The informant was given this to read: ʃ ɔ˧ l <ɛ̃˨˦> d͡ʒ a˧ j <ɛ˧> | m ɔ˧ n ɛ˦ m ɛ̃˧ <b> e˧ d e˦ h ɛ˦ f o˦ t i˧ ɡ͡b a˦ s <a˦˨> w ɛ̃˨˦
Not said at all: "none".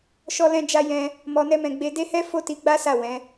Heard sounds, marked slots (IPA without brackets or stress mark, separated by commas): ɛ̃˧, ɛ̃˧, ɡ͡b, a˦˨